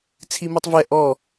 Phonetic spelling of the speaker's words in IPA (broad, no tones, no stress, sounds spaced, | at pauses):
t͡sʰ i m u tˤ v ɛ ʔ ɔ